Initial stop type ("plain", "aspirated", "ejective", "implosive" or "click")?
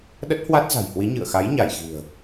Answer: implosive